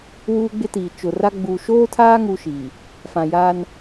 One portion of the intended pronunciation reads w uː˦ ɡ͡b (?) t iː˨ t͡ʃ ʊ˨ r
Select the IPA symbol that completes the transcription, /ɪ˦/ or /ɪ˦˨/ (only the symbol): ɪ˦